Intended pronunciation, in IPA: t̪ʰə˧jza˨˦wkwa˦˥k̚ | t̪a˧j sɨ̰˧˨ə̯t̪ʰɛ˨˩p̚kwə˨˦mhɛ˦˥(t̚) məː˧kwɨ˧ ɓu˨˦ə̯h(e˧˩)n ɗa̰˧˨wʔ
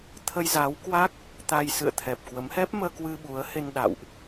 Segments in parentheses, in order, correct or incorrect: incorrect: p̚, incorrect: e˧

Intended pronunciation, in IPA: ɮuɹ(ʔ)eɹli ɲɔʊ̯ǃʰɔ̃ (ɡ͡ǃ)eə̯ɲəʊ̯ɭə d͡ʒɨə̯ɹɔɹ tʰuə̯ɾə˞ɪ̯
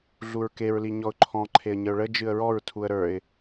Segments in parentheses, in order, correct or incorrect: incorrect: k, incorrect: ǃʰ

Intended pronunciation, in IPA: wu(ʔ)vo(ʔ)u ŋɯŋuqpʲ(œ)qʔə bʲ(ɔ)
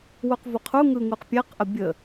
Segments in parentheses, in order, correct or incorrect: incorrect: q, incorrect: qʰ, incorrect: ɛ, incorrect: ə

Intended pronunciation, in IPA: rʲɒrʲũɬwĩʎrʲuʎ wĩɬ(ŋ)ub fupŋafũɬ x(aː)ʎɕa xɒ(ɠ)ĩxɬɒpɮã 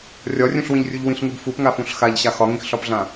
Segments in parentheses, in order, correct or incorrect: correct, incorrect: a, incorrect: ŋ

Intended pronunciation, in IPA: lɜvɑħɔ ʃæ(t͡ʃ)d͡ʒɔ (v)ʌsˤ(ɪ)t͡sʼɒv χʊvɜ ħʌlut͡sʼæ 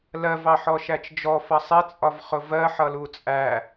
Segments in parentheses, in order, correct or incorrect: correct, incorrect: f, correct

